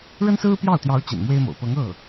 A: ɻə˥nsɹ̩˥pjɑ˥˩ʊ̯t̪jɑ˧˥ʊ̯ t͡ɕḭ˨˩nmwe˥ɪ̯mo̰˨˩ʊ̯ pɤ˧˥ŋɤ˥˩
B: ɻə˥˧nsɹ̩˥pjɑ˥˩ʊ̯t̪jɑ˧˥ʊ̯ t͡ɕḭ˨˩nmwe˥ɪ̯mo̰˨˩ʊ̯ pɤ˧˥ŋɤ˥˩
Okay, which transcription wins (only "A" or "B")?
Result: A